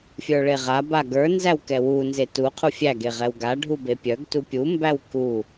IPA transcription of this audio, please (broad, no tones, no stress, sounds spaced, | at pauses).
fʲ ə˞ ɭ e ʁ a b a ɡ ə˞ n z æ w k ɛ w u n z e t u qʰ u fʲ æ ɡ e ʁ ɛ w ɡ a ɖʱ u b e pʲ œ ɡ t u pʲ u m b æ w k u